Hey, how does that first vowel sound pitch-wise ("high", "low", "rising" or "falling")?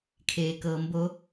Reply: low